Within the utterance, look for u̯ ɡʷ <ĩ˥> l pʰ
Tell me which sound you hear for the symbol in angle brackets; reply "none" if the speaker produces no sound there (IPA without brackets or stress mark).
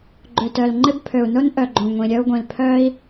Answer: ĩ˨˩